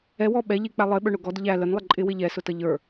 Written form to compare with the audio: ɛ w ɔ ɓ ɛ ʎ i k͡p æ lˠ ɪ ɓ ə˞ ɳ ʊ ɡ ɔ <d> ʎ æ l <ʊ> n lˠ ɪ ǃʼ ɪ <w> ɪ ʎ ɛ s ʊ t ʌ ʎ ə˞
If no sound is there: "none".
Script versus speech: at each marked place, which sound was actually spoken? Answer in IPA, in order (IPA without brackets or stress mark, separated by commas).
d, ə, w